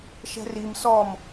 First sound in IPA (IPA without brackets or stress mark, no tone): ʃ